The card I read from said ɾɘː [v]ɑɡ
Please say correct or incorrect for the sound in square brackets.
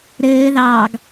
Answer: incorrect